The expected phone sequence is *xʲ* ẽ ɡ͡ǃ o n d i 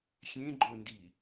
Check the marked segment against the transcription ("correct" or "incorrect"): correct